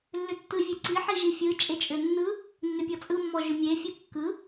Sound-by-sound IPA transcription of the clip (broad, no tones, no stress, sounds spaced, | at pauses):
lː ʏ tː ɯ vʲ e ǀ i ħ i ʒ i fʲ ɯ t͡ʃʼ e t͡ʃʼ ʏ nː ɯ | nː ʏ pʲ ɔ t͡sʼ ɯ mː ɔ ʒ ʏ mʲ e fʲ ɯ kː ɯ